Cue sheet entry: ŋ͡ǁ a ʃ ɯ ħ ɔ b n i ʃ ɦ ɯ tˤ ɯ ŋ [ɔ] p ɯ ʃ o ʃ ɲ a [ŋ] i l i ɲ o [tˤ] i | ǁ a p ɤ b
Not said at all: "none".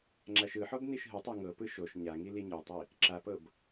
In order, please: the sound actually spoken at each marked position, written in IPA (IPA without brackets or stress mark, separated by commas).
ɤ, ŋ, tˤ